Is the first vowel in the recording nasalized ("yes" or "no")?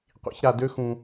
no